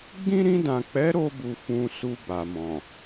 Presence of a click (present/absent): absent